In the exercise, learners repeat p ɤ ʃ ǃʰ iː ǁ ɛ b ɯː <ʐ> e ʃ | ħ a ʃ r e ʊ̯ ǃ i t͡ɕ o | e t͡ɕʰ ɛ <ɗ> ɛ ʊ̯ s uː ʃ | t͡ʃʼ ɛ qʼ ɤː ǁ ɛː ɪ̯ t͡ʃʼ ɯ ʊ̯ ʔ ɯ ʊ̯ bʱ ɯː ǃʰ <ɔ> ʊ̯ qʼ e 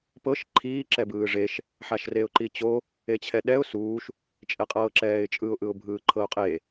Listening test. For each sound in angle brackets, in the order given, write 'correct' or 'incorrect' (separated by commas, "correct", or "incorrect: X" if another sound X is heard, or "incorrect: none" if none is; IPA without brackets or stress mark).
correct, correct, incorrect: ɤ